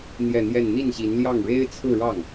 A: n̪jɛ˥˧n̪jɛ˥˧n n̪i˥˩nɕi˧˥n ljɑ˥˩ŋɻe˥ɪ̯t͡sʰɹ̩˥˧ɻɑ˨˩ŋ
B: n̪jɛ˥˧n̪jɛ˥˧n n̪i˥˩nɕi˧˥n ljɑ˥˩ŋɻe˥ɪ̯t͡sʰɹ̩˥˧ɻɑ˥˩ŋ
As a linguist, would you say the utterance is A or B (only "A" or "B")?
B